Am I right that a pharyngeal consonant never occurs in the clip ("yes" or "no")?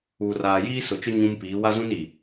yes